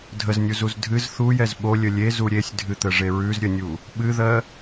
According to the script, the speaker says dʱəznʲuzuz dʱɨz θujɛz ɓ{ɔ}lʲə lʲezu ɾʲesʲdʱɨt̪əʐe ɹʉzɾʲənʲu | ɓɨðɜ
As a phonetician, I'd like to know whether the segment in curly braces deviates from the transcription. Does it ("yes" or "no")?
yes